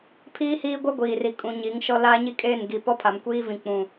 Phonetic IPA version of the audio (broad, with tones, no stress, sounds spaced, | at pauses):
pʰ iː˦ h iː˦ ɡʷ ɛ˦ ɡʷ iː˨ r i˨ kʼ ũ˨ ɲ i˨˦ ŋ ʃ ɔ˦ l aː˦ ɲ i˦ kʼ eː˦˨ n ɡ i˨ p ɔ˦ pʰ a˨ m kʷ iː˦ v ĩ˨ k͡p ũ˨